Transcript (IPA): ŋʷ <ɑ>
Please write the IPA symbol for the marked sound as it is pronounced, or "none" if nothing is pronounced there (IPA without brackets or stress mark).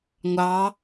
ɑ